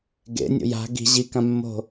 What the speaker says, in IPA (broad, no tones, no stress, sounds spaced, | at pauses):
ɡ ḛ nʲ o̰ j a̤ ɡ i̤ ʑ i k ã mː o̤